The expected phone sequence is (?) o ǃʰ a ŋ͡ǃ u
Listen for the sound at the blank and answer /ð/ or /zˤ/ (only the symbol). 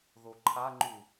ð